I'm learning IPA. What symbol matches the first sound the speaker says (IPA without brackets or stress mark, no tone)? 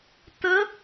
t